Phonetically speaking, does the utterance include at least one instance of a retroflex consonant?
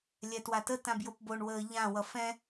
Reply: yes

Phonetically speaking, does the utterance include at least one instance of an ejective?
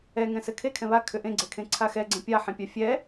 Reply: no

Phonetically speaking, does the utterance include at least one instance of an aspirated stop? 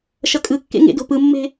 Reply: no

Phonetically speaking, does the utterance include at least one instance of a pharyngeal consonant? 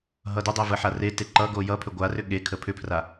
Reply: yes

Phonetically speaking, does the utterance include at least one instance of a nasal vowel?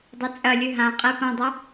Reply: yes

